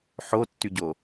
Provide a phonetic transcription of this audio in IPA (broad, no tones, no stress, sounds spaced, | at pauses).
ħ o tː y ɟ o